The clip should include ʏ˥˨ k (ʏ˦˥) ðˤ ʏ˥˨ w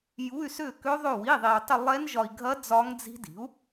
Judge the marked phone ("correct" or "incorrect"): correct